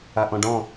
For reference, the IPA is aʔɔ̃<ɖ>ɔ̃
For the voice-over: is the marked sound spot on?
yes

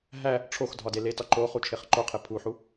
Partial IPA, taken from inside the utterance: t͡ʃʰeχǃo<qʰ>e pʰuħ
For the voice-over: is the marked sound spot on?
yes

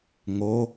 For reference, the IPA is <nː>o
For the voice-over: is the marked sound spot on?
no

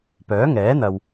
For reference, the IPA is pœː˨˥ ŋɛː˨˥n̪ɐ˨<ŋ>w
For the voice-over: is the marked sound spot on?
no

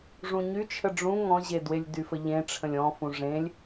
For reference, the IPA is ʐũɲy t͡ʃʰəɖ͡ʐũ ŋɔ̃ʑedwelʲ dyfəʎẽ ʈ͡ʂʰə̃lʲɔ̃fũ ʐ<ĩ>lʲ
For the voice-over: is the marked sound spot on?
no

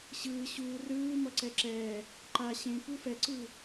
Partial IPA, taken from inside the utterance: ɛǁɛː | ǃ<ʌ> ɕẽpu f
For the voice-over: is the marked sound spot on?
no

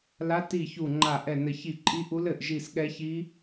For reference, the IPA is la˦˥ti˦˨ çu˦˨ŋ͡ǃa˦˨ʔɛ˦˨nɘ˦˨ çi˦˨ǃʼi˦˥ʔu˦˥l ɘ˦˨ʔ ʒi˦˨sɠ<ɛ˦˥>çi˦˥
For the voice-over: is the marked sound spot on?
yes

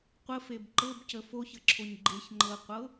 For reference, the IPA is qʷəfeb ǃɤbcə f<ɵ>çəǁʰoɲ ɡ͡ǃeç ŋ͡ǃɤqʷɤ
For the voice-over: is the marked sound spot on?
no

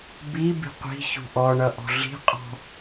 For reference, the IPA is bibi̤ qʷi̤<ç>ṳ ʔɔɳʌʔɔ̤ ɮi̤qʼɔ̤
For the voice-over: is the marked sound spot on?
yes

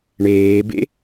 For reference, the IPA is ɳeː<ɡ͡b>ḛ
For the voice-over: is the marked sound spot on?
no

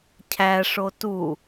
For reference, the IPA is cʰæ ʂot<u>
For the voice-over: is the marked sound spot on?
yes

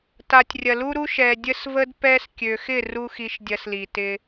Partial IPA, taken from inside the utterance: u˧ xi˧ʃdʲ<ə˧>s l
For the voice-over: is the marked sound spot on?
no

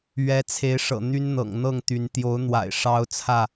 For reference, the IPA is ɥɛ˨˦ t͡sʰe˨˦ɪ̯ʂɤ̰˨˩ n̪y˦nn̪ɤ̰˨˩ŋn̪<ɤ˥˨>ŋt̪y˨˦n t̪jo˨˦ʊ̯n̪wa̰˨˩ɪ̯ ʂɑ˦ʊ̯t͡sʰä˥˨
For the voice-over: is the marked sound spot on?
yes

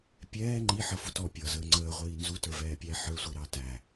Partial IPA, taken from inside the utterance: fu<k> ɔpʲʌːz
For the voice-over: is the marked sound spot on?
no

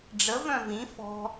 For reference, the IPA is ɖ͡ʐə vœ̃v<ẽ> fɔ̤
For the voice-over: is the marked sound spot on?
no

